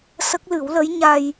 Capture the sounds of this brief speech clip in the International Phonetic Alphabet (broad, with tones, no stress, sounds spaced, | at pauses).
s ə˦˥ k̚ l ɨ˨˩˦ w l ə˧˥ j ɲ a˧ j